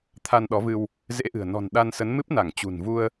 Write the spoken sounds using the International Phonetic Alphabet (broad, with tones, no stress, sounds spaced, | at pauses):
t̪ʰ a˧ n ɗ ɔ˨˦ v ɨ˧ w | z ḛ˧˥ ʔ ɨ̤˨˩ ə̯ n ɔ̤˨˩ n ɗ a˧ n s ə˨˦ n m ɨ˦˥ p̚ n a˧˩ ŋ t͡ɕ ṳ˨˩ n v u˧ ə̯